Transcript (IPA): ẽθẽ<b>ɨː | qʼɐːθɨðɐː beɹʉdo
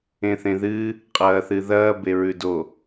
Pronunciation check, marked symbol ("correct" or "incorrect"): incorrect